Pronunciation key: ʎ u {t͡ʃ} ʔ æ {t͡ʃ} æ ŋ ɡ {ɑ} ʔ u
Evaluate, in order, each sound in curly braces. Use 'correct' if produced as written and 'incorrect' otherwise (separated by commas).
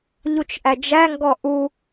correct, incorrect, incorrect